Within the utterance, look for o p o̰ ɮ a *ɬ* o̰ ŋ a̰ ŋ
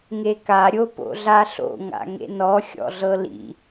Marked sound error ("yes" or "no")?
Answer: no